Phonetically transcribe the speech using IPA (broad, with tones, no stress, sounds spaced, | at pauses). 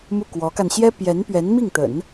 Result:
m u˥˩ k w ɔ˧˥ k a˧ n ɕ j ɛ˥ p j ɛ˧˥ n p ɥ ɛ˧˥ n m i˥˩ ŋ t̪ ə̰˨˩˦ n